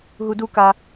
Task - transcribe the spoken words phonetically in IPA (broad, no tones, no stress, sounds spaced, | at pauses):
ɦ u d u k a